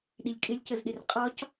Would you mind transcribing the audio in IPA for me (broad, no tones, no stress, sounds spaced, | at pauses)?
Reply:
ɗ i lʲ kʼ ɪ lʲ c ə z ɗ ɪ r qʼ ɒ c